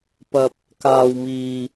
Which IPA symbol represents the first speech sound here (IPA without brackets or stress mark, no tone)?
p